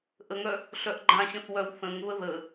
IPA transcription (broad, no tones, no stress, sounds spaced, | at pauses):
ʔ ə ŋ œ | ɬ œ ʔ ɡ͡ǃ ã ɕ ə̃ θ w œ w θ ə̃ ŋ β ə ð ə